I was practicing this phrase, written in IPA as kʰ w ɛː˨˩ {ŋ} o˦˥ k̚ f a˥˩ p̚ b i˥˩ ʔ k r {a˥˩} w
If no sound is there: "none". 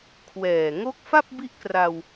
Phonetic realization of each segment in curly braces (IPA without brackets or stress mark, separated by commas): ŋ, a˧